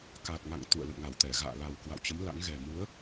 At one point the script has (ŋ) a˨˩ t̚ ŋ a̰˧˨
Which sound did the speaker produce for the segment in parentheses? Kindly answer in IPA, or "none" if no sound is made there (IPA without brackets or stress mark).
k